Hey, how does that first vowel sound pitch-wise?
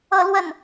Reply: falling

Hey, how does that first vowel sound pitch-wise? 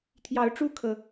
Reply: rising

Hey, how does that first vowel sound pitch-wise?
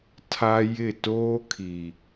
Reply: high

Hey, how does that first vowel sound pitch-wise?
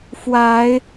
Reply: rising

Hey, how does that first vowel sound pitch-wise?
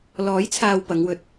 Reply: rising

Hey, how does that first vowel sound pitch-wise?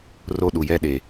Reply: high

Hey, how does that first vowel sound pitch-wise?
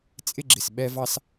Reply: high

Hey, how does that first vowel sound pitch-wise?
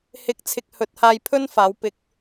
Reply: rising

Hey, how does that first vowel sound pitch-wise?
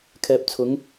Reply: low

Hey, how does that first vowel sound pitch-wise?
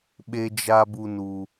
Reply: high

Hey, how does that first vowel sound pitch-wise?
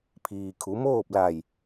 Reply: low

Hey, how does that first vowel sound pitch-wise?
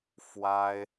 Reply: high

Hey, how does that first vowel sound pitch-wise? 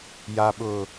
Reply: low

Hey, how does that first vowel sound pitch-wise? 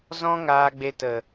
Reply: high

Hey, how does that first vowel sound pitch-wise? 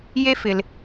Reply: high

